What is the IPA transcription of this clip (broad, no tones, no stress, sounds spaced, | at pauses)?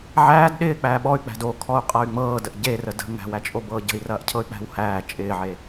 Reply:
ʕ æː d ɗ ɪː k͡p æː ɓ ɔ y̯ k͡p æ̤ d o kʰ ɔ u̯ qʼ ɐ y̯ ŋ͡m ɤː d ə ʔ ɟ e r ə d ə̤ ŋ æ̤ w æ t͡ʃʼ o b ɤː ɟ ə̤ i̯ r ɐː ʔ cʰ ɤ y̯ k͡p æ̤ w h æː t͡ʃʼ ɪː ʕ e